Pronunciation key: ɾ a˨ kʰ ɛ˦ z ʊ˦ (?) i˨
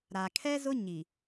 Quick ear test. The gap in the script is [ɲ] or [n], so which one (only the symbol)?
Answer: ɲ